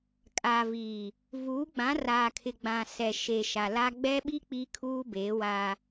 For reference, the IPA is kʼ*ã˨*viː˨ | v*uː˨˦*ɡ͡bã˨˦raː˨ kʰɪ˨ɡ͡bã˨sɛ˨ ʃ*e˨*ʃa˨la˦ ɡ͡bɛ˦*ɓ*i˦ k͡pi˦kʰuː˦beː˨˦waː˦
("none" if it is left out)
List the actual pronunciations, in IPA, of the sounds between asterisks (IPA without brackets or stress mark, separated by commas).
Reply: a˨, uː˨˦, e˨, ɓ